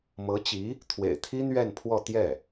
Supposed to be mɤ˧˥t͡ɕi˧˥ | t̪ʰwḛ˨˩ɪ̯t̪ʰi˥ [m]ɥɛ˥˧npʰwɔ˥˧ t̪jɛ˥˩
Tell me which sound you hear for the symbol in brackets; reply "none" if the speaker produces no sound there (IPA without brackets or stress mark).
n̪